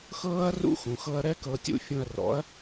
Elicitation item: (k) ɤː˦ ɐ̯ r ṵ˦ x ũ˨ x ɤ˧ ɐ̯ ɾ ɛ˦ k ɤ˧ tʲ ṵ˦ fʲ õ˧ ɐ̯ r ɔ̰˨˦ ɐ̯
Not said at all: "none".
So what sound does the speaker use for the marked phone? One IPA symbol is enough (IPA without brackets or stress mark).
x